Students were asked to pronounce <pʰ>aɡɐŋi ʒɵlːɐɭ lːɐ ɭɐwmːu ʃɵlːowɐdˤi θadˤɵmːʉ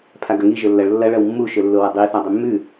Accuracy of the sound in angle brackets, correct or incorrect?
correct